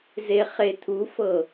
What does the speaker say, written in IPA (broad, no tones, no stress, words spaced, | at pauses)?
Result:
zeχet̪ʰufɤ